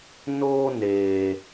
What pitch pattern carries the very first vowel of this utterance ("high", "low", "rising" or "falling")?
high